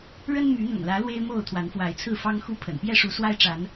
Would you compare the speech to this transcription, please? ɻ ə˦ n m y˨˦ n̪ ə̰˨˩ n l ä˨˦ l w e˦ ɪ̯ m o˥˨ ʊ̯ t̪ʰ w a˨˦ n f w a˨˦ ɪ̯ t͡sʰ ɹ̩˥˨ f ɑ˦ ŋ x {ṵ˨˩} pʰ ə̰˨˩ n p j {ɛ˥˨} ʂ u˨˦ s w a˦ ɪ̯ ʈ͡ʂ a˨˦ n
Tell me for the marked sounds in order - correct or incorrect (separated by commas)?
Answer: incorrect, correct